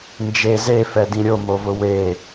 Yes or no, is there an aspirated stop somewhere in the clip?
no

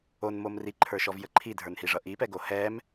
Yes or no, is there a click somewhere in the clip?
yes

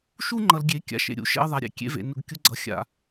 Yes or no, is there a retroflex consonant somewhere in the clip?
no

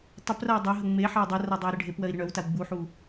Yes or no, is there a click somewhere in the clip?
no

